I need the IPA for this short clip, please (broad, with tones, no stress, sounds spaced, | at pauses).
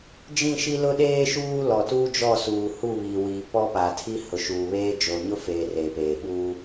d͡ʒ ĩ˦˨ ʃ i˦ l ʊ˦ ɗ eː˦ ʃ uː˦ l ɔ˨ t uː˦ d͡ʒ ɔ˦˨ s uː˨ h u˦˨ β i˨ w iː˨ p ɔ˦ p a˨ tʰ i˦ h ʊ˨ ʃ uː˨ β eː˦ d͡ʒ o˨ ɲ ʊ˦ f eː˨ r eː˨ p eː˨ ɓ uː˦